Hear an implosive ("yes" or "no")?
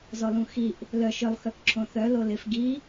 no